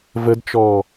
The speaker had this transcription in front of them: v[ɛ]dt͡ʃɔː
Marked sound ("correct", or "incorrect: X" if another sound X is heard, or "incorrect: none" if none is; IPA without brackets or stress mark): incorrect: ə